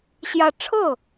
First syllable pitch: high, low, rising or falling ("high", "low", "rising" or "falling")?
falling